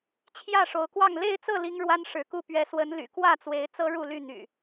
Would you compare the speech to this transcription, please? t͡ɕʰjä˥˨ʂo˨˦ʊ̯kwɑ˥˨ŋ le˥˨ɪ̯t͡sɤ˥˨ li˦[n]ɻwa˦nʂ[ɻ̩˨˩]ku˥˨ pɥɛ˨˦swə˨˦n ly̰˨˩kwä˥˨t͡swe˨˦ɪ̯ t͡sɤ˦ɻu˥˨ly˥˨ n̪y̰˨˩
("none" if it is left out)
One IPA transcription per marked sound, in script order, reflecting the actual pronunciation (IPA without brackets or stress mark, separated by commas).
ŋ, ɻ̩˨˦